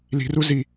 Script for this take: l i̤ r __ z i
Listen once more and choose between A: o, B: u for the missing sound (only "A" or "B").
B